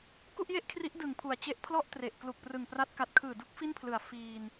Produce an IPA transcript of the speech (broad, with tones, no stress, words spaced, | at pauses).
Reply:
ku˥˩ʔje˥˩ʔkʰri˦˥ʔ dɯ˨˩ŋpʰu˨˩a̯t͡ɕe˦˥ʔ pʰlɔ˥˩ʔtre˨˩ʔ klu˨˩k̚prɯ˨˩ŋpra˦˥t̚ ka˨˩t̚kʰɯː˨˩du˦˥k̚ fi˥˩npʰlɯ˨˩a̯ fiː˧n